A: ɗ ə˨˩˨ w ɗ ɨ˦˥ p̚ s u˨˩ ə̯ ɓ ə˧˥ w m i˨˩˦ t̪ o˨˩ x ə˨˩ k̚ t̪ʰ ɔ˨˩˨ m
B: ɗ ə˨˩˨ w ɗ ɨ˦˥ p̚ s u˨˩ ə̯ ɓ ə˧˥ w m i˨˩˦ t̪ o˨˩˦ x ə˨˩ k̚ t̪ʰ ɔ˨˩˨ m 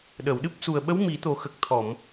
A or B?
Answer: A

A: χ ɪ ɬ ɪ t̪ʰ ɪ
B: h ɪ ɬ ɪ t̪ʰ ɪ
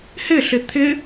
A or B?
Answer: B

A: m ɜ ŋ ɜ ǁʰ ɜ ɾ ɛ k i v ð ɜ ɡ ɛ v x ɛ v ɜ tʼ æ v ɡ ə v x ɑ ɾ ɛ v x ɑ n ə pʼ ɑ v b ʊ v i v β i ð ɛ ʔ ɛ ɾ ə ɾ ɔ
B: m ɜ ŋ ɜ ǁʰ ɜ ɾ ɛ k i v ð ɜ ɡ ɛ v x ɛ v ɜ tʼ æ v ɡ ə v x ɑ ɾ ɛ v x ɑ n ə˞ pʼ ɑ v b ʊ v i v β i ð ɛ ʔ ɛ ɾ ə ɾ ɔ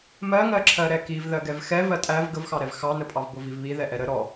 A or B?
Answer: A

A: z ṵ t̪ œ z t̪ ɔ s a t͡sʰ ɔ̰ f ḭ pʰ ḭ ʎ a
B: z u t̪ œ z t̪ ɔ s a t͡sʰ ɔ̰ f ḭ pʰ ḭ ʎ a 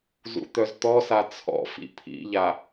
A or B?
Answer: A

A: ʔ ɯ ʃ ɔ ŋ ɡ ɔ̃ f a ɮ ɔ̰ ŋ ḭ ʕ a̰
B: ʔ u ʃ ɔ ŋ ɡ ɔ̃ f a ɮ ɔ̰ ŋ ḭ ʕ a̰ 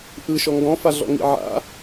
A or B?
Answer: A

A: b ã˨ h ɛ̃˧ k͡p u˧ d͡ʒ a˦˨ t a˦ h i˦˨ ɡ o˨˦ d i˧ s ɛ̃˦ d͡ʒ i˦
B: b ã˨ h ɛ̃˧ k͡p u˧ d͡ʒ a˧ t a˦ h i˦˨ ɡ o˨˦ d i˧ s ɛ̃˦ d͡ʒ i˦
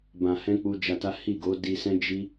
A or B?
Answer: B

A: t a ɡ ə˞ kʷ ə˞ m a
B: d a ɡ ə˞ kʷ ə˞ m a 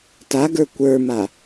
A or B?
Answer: A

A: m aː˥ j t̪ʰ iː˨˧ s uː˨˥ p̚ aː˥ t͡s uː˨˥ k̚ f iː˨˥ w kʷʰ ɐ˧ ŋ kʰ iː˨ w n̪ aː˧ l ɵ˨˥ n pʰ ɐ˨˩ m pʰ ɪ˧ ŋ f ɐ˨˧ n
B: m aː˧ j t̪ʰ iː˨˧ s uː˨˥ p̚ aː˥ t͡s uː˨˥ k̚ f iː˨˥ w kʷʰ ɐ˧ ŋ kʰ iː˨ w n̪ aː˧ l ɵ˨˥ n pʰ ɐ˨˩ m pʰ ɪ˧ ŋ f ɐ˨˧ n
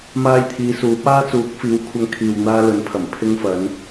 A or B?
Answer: B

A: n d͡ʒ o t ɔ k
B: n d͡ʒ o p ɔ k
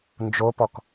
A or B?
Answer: B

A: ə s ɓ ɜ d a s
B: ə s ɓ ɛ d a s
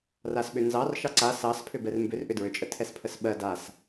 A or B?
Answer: A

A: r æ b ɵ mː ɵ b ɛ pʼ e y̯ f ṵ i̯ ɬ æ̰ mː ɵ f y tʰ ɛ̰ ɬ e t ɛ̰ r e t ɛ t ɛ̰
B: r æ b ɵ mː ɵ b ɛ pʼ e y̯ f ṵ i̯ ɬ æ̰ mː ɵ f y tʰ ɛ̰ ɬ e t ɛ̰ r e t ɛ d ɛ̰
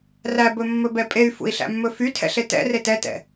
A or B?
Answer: A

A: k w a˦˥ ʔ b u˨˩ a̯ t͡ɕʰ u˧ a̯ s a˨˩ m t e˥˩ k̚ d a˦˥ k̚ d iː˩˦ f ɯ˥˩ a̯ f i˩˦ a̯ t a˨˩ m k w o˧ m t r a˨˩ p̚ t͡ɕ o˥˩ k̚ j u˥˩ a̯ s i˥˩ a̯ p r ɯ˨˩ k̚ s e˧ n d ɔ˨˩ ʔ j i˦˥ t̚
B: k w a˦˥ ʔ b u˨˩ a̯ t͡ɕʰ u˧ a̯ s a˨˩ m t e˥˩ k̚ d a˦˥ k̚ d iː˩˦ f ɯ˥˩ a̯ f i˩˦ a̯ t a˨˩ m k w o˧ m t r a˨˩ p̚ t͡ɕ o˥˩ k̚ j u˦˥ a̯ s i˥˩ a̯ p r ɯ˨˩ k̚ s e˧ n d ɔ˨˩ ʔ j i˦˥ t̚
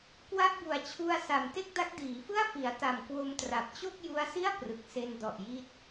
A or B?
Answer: B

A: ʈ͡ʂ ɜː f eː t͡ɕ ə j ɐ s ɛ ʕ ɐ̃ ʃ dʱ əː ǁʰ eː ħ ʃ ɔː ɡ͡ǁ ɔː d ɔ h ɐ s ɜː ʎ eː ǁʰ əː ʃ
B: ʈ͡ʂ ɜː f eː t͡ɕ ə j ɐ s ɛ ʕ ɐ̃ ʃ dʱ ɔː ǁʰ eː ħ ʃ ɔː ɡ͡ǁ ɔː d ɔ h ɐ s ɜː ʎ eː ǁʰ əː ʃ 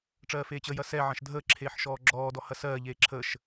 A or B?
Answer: A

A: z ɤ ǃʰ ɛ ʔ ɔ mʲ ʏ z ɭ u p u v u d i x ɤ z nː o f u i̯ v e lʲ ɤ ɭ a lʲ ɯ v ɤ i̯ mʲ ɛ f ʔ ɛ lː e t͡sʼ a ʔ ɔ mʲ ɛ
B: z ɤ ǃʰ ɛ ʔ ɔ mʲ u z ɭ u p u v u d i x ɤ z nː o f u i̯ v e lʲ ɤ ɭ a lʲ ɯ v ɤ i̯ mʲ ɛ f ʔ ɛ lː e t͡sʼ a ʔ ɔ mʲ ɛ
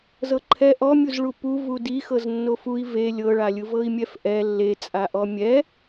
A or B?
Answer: B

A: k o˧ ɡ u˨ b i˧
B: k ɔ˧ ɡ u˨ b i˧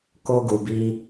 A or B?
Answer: A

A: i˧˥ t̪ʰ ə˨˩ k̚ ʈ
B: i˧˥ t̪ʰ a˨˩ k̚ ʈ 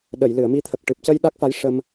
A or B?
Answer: A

